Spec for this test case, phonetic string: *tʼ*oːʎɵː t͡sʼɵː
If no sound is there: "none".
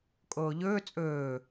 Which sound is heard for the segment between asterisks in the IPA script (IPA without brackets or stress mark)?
kʼ